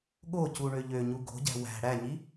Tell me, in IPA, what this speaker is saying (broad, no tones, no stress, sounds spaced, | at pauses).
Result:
ɠ o c u ɳ ø ʎ ø ɲ u ɡ o̤ ɟ æ̤ w æ̤ ɽ æ ɲ i